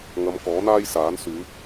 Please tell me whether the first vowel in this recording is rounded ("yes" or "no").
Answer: no